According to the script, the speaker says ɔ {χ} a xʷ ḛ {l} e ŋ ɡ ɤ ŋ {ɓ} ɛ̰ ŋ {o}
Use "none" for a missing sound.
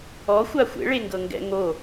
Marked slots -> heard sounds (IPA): xʷ, ɭ, ɡ, o

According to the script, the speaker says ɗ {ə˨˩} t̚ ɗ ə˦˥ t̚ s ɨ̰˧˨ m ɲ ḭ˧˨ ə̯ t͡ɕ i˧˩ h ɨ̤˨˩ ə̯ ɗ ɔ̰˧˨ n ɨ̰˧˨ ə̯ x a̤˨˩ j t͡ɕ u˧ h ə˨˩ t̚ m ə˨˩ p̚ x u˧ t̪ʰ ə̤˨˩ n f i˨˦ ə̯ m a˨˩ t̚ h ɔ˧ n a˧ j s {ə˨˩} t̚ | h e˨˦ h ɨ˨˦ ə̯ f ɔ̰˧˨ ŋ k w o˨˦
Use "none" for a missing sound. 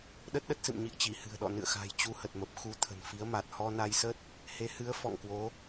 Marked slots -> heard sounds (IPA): ə˦˥, ə˦˥

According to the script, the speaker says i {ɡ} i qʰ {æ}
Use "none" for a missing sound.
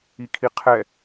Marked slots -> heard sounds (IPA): kʰ, ɛ

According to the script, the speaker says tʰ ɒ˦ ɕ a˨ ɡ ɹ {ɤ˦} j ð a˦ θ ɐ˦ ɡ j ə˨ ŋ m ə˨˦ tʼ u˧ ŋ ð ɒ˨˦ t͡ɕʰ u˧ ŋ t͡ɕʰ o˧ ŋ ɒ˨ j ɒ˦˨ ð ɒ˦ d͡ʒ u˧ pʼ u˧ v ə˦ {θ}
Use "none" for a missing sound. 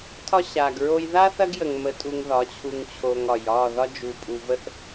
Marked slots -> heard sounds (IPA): o˦, θ

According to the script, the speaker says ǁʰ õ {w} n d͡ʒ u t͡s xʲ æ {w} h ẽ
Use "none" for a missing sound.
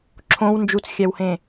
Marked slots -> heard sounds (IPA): w, w

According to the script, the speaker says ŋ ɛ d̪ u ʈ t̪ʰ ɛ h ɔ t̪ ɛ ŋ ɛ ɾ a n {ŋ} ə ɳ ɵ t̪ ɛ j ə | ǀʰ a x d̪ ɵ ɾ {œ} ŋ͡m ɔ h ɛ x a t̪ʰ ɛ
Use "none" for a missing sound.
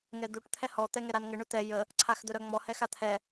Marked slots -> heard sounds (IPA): ŋ, œ

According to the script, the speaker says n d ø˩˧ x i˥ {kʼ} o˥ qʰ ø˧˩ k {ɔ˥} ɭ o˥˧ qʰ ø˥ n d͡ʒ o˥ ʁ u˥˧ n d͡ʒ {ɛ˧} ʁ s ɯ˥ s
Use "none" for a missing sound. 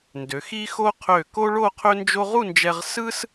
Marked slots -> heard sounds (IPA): x, o˥, ɛ˧

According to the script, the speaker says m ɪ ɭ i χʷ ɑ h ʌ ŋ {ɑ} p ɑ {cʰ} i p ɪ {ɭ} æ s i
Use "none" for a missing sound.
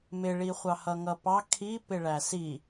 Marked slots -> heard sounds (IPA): ʌ, kʰ, ɭ

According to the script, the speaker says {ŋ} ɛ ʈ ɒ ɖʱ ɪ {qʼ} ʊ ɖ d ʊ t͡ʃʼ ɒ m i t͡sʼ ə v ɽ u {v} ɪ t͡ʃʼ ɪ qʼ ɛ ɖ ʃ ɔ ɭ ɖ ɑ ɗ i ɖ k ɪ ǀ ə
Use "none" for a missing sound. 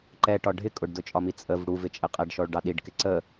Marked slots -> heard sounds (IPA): ǃ, kʼ, v

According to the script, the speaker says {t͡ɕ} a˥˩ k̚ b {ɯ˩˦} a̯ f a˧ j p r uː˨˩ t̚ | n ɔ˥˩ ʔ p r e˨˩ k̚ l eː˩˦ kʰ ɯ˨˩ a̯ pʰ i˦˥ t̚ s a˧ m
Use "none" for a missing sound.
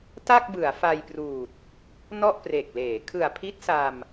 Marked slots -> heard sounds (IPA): t, ɯ˩˦

